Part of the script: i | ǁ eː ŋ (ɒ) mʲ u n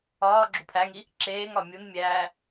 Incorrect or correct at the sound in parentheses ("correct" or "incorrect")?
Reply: correct